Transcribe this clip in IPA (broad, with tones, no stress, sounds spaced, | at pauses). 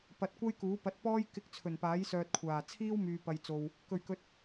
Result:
p ɐ˨ t̚ kʷ ɐ˥ j k uː˨˥ p ɐ˨˥ t̚ p ɔː˥ j k ɪ˧ k̚ t͡sʰ ɵ˨˩ n p aː˨˥ j s œː˧ t̚ kʷʰ aː˨˩ t͡sʰ iː˥ w m yː˨ p ɐ˨ j t͡s o˨ w | k ɵ˨˩ ɥ k ɵ˨ t̚